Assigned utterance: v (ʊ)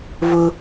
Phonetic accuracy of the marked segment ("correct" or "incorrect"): correct